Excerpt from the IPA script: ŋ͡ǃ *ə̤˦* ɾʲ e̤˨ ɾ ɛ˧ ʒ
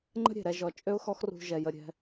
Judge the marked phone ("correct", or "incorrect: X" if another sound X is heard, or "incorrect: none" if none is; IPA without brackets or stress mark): correct